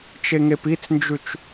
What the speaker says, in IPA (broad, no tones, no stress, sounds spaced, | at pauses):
t͡ʃ e ŋ e p i t͡s n d͡ʒ ʉ t͡ʃ